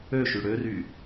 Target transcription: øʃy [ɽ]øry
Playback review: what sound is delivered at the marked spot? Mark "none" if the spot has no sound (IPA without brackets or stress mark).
ɽ